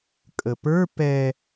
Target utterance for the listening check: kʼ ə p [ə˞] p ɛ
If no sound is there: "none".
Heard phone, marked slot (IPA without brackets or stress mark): ə˞